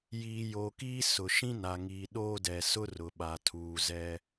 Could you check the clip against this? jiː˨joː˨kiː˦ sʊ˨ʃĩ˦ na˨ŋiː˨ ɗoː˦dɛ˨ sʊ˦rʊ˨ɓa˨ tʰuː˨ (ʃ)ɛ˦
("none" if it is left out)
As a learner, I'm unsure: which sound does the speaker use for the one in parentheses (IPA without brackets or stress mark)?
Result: z